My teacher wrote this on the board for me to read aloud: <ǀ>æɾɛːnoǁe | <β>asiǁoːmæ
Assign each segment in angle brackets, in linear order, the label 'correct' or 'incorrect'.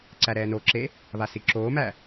correct, correct

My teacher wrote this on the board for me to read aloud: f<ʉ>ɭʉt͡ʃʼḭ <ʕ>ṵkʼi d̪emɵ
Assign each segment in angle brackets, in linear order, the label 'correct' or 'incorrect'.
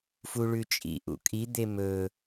incorrect, incorrect

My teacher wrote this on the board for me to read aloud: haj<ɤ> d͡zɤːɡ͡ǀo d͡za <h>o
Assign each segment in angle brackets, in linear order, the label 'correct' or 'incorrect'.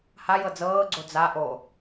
correct, incorrect

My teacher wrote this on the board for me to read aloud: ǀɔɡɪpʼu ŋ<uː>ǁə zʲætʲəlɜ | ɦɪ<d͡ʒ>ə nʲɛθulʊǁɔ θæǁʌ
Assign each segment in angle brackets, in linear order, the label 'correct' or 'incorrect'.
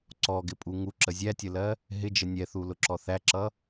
incorrect, correct

